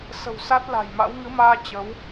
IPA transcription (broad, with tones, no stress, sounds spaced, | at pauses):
s ə̤˨˩ w s a˦˥ t̚ l a̤˨˩ j m a̰˧˥ w ŋ ɨ˨˦ m aː˧ t͡ɕ ə˨˦ w